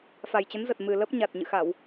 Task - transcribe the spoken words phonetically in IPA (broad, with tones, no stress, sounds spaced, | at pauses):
f a˨˩ j t͡ɕ ə˨˦ n z ə˨˩ t̚ m ɨ˨˩ l ə˦˥ p̚ ɲ a˨˩ t̚ ɲ ɨ̰˧˨ x a˧˩˨ w